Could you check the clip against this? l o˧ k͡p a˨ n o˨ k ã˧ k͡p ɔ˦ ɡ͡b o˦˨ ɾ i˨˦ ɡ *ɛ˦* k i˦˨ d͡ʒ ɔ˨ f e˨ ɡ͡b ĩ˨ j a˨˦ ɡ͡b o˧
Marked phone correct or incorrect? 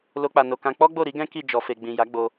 incorrect